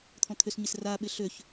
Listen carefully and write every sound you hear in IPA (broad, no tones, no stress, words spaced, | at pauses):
t̪ʰɔ̃t̪ʰʏsɲɪs raːɓɪ ɬøç